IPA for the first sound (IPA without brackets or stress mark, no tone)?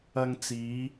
ɐ